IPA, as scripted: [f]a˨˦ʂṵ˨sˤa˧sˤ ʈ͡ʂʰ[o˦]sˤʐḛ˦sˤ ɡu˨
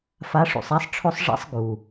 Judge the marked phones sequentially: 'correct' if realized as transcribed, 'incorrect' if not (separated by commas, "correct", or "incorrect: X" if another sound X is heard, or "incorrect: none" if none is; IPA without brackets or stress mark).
correct, correct